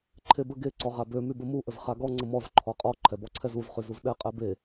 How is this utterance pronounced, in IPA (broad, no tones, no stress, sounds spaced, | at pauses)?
ǃʰ e b ə ɡ e ǀ ɔ ʁ a b ø m y b ə m u ʔ ə z χ a ɡ ɔ ŋ͡ǀ ə m ɔ z ǃʰ ɔ qʼ ɔ ǃʰ ɛ b ɔ ǀʰ ɛ z u z χ y z u z ɗ ɛ qʼ ɛ b e